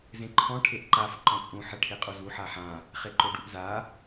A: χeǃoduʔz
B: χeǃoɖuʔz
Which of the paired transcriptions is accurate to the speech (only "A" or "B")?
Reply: B